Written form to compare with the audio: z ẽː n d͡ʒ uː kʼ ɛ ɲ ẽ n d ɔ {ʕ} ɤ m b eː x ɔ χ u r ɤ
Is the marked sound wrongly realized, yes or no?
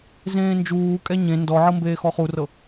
no